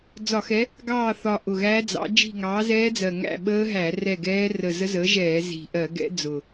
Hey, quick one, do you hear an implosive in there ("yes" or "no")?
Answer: yes